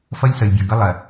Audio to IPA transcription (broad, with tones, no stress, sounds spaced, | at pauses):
f ʌ˦ lʲ s ʌ˨ lʲ bʲ ɔ˨ ɡ ʌ˦ lˠ ɜ˨